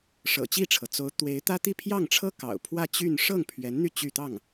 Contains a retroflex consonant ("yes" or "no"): yes